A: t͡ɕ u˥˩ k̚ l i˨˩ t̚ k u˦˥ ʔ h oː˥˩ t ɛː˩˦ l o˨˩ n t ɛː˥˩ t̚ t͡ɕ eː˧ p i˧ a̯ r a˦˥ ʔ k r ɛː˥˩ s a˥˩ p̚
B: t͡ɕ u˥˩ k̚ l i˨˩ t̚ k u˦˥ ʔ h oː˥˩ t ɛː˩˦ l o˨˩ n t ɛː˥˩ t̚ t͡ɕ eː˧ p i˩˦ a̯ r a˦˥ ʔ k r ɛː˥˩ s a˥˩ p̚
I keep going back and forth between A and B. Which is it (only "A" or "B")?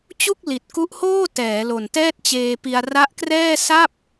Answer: A